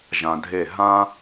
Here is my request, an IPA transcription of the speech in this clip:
ʒ ã˨ dʱ e˦˨ ɦ ã˦

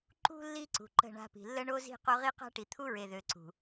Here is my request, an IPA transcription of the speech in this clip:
ǃ ṳ˦ lː i˦ ǀ ṳ˨ ǃ ə̤˦˨ ɳ a̤˦ p i̤˨ lː ə˦ ɳ o˦ z i̤˦ q o˦ ʁ i˦ q a̤˦ ʈ i˨ t̪ʰ u˦ ɹ e˨ ð ø˨ ǀ ṳ˨

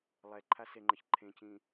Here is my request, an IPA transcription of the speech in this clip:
lˠ ɛ ǃʰ a s e ŋ͡ǃ ʌ ç ǃʰ ẽ c ĩ

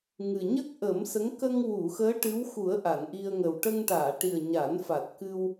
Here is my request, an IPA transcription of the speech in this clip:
ŋ ɨ˨˩ ɲ ə˦˥ k̚ ʔ ə˨˩˦ m s ə˧˥ ŋ k ə˧ ŋ w u˨˩˨ x əː˧˥ ʈ ɨ˧˥ w x u˨˩˦ ə̯ ʔ a˨˩˨ n ʔ i˧ ə̯ ŋ ə˨˩ w ʈ ə˧ ŋ ʈ aː˨˩˨ ʈ i˨˩ ə̯ ɲ a˨˩˦ n f a˨˩ t̚ k ɨ˧ w

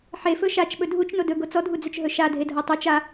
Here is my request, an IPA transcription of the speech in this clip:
ħ e f ɵ ʃ a t͡ʃ ɓ ɵ dʱ u t͡ʃ n o d ɵ ɡ o t͡s ɔ dʱ u d͡z ɵ t͡ʃ ɦ ɵ ʃ a dʱ e dʱ ɔ tˤ o t͡ʃ a

